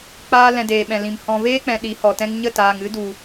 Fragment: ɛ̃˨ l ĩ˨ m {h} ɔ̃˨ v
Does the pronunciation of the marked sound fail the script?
no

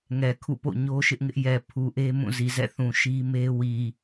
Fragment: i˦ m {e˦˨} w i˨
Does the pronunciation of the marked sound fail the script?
yes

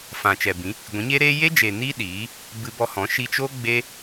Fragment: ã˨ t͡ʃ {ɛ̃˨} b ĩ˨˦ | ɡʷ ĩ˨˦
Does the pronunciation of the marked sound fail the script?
yes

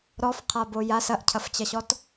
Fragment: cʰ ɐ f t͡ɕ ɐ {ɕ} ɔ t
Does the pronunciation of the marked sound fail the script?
no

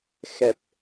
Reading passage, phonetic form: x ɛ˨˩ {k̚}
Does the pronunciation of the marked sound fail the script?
yes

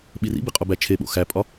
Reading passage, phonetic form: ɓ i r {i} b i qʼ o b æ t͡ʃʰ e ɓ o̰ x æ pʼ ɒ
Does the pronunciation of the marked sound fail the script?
yes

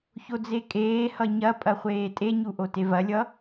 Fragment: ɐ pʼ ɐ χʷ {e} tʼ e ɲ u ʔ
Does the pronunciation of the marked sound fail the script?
yes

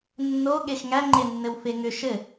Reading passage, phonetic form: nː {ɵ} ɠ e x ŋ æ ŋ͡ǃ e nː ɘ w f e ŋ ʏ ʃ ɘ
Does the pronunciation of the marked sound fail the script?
yes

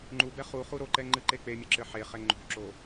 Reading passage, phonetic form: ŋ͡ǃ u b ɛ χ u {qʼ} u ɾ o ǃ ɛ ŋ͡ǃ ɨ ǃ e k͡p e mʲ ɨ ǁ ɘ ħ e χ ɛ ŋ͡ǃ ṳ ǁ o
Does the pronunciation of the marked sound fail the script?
yes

